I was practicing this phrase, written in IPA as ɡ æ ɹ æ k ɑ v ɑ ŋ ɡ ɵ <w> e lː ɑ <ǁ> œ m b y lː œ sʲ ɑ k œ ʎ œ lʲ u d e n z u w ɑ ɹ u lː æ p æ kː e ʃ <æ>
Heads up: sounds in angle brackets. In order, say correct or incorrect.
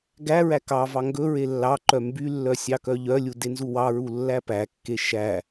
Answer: incorrect, incorrect, correct

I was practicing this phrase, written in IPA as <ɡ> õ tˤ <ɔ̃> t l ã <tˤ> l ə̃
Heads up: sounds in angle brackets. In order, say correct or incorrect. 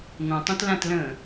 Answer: incorrect, incorrect, incorrect

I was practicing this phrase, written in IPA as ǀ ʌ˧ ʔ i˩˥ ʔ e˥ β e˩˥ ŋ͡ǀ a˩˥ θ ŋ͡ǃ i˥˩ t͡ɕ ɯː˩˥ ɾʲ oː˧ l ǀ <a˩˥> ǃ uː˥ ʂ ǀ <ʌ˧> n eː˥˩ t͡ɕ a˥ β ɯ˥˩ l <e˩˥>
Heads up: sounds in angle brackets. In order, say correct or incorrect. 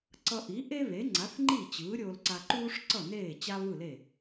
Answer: incorrect, incorrect, incorrect

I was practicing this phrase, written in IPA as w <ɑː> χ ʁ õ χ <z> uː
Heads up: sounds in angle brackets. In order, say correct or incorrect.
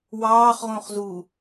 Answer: correct, correct

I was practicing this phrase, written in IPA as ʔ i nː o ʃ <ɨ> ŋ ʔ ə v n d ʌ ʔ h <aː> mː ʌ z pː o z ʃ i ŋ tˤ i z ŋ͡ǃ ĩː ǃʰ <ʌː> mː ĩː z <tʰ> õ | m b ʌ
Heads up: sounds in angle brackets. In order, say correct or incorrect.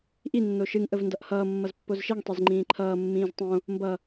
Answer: correct, incorrect, correct, incorrect

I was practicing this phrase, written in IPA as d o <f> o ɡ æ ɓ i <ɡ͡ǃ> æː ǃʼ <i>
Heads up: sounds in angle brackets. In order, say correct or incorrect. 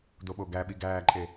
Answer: incorrect, incorrect, incorrect

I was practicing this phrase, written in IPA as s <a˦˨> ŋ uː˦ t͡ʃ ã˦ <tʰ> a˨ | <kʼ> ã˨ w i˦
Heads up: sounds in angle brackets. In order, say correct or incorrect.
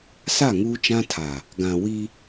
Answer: correct, correct, incorrect

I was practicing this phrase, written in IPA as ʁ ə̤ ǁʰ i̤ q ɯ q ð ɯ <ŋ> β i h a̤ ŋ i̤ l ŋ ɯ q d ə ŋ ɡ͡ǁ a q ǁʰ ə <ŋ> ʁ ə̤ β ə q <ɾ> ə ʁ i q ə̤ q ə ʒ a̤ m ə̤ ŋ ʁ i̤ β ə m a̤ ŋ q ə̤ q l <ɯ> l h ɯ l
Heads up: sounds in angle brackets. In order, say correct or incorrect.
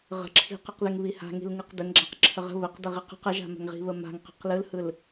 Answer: correct, incorrect, incorrect, correct

